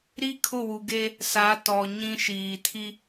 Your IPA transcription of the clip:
ɾi˦kʰʊ˦˨wu˨ɡe˦ | sa˨˦tɔ˨ɲĩ˦ ʃiː˨tʰi˦

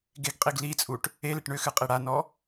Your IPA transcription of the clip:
ɡeɡqʼiɡ lit͡sʼuʈ | e leʈɳʏxɨ qʼiɽanɔ

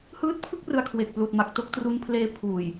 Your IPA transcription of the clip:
hɯː˦˥t̚pʰɯ˥˩k̚ rɯ˧a̯kʰwe˨˩k̚pluː˨˩t̚ma˨˩k̚ to˦˥k̚tru˦˥npʰleː˦˥ pʰuː˨˩j

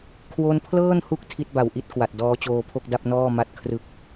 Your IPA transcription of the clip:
kʰwo˧npʰlɤː˥˩nhu˦˥k̚ tʰi˦˥t̚ba˨˩wʔi˦˥t̚ kwa˨˩t̚ dɔː˦˥t͡ɕoː˧pʰo˥˩k̚da˥˩p̚ nɔː˥˩ma˥˩t̚ kʰrɯ˦˥k̚

